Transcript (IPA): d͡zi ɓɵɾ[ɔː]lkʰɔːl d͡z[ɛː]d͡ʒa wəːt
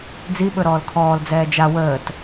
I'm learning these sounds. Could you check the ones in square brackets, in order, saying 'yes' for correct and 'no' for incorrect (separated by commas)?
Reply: yes, yes